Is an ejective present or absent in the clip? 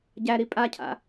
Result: present